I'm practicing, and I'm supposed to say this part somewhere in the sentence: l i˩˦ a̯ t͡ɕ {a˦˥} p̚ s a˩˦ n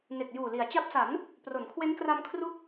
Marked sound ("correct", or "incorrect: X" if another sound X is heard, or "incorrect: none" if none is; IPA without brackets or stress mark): correct